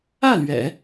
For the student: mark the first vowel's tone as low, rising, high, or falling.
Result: falling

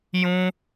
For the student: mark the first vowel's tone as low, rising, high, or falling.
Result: high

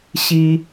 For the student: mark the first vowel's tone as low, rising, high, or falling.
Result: low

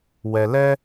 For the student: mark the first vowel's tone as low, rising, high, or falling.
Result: low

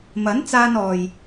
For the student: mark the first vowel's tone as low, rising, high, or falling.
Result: rising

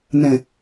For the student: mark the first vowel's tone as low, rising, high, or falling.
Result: low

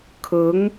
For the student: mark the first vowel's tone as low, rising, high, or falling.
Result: rising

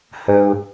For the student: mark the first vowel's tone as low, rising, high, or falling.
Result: low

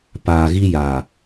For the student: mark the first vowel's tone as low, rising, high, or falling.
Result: low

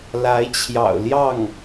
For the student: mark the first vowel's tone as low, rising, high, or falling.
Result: rising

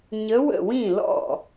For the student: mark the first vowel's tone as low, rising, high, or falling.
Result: rising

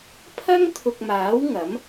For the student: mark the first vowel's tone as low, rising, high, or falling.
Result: high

